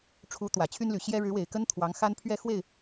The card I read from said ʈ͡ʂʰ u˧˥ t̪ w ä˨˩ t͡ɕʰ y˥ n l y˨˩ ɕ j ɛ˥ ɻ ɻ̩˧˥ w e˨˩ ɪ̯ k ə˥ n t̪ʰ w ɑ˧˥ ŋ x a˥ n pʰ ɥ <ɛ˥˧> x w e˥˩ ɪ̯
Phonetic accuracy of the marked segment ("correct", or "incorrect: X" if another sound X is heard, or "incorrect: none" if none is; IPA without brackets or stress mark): correct